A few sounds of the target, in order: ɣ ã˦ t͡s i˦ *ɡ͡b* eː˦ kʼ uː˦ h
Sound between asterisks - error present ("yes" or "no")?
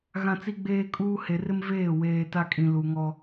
no